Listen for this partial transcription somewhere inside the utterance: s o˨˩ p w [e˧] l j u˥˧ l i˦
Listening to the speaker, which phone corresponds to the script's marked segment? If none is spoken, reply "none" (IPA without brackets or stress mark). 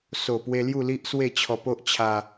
e˧